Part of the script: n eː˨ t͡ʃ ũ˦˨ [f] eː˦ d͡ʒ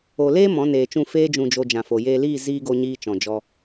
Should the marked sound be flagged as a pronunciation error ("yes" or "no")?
no